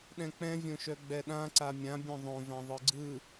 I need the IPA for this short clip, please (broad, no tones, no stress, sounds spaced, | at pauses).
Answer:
ɗ ɛ̃ k͡p ɛ̃ vʲ õ ʃ œ ɡ͡b ɛ ɗ ã ǀ a mʲ ã bʲ œ̃ ðˤ õ v ã ðˤ ɯ ɡ͡ǀ ɯ